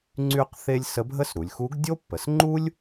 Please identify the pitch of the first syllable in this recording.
high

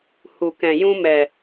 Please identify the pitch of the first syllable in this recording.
low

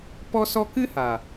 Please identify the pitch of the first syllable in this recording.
high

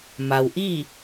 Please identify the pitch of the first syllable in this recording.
low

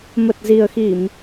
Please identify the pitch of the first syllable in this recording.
low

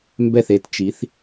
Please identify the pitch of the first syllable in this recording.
falling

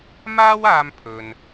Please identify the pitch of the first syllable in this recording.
high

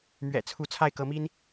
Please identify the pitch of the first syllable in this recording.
low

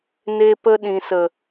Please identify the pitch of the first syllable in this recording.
high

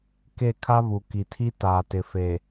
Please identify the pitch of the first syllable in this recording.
falling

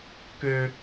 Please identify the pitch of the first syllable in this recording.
high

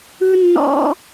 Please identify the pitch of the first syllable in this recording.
high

